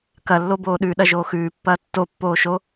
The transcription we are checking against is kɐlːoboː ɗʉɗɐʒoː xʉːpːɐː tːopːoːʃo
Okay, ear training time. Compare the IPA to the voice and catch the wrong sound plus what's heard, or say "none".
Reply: none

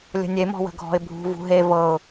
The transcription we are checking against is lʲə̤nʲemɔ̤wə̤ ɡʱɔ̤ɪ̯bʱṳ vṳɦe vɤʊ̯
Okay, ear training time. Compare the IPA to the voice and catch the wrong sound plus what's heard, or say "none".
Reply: none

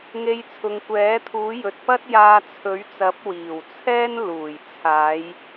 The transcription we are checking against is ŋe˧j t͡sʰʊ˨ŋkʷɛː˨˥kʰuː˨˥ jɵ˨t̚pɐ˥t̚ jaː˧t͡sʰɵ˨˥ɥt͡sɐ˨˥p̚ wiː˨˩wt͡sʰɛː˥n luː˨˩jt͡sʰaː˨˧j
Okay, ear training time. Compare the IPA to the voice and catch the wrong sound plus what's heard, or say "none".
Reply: kʰ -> t̪ʰ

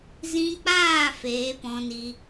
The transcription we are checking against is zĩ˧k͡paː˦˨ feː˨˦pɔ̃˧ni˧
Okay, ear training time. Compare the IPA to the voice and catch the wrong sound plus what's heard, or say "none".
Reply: none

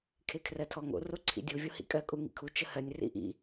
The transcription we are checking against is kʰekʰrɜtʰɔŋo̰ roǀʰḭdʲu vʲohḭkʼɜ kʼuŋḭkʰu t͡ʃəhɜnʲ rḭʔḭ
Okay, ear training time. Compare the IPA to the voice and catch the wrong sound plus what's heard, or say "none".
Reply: none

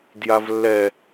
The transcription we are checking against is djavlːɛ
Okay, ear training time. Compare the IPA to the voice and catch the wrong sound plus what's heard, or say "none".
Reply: none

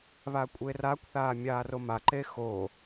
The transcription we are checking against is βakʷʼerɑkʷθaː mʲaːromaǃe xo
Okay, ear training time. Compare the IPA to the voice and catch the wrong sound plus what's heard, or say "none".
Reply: ɑ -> a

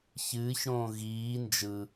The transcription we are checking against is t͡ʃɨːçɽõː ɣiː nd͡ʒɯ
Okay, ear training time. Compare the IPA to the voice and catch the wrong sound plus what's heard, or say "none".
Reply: t͡ʃ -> ç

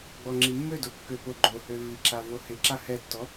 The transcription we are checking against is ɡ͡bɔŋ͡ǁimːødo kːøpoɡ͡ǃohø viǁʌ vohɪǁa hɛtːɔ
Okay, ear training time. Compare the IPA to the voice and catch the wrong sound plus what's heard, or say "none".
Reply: ʌ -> a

